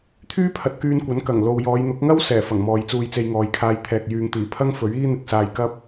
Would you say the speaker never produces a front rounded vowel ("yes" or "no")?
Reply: no